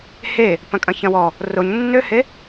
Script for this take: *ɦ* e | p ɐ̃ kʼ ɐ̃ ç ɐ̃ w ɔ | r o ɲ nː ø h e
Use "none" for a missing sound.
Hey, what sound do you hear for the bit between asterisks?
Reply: h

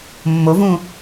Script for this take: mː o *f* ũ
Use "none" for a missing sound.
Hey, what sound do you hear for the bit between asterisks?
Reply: v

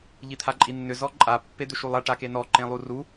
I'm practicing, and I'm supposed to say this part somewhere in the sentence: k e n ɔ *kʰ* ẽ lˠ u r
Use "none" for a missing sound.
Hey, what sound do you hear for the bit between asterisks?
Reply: ǃ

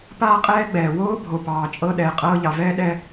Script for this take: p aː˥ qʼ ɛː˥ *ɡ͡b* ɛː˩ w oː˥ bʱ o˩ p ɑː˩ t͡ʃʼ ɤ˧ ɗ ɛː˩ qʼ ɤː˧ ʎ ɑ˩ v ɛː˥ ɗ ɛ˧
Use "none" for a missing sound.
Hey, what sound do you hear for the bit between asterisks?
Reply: ɡ͡b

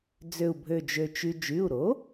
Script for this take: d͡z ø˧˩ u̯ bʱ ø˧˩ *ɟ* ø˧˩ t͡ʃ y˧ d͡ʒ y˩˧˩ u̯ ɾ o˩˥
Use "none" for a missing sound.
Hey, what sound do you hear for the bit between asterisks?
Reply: d͡ʒ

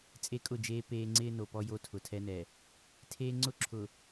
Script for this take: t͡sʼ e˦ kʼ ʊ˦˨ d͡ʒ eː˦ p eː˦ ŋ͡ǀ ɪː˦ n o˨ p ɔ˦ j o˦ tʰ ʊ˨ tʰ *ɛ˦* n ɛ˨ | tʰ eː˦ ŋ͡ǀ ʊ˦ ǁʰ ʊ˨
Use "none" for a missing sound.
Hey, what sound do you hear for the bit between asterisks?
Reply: ɛ˦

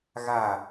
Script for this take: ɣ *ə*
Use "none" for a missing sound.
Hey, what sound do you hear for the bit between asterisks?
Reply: a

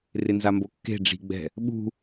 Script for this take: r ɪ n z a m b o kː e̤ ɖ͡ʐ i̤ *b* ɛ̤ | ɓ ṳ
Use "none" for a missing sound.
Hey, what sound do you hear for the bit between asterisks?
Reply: ɡ͡b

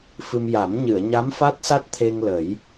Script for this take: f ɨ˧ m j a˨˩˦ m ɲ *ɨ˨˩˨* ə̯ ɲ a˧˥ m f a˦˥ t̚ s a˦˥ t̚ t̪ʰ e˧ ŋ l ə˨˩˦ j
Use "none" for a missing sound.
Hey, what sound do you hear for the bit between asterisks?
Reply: ɨ˨˩˨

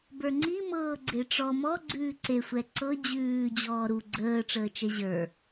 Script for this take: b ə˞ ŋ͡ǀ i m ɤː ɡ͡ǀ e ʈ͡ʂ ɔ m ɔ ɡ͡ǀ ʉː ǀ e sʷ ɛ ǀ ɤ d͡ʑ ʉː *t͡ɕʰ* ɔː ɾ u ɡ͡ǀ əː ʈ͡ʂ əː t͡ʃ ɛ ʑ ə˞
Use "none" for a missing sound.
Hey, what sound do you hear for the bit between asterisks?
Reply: d͡ʑ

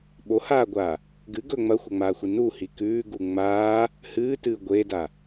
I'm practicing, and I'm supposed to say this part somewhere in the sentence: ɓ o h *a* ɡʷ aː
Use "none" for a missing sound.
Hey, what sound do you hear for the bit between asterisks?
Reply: aː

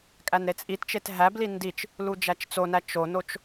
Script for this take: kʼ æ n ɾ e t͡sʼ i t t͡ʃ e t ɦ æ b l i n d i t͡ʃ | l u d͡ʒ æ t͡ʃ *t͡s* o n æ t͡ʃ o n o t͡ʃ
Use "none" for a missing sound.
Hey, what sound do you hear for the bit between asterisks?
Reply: t͡s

